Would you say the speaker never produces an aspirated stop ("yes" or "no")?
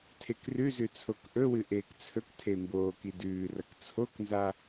no